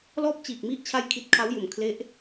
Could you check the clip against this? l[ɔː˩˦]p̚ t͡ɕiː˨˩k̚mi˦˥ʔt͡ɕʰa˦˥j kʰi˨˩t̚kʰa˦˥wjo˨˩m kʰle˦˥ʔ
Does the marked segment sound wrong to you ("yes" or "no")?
yes